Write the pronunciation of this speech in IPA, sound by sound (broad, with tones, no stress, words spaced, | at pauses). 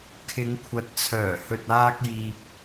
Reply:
kʰɪ˨˧ŋkʷʰɐ˨t̚ t͡sʰœː˨˩hɵ˨t̚aː˧k̚ jiː˧p̚